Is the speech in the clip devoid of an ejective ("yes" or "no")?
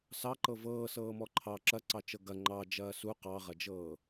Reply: yes